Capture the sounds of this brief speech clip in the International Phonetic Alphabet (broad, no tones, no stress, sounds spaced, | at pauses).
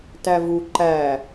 t æ v u ǃ æ